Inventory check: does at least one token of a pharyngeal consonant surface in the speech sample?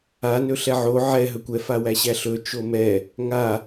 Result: yes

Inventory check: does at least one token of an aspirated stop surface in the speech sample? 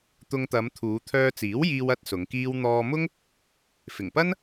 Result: yes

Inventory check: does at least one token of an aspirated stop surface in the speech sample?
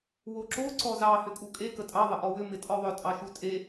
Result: no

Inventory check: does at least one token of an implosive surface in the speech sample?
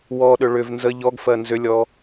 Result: yes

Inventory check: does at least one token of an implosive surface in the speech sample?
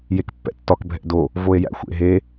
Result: no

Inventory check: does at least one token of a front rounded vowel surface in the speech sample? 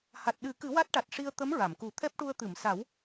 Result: no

